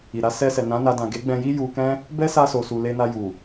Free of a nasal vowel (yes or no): no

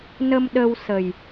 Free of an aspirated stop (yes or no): yes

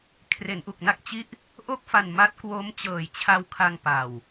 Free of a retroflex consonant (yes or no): yes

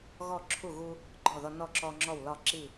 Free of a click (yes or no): no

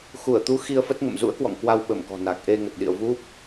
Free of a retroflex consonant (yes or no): yes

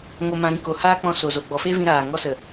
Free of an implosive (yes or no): yes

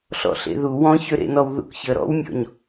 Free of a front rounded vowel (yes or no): no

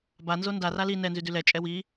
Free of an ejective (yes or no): no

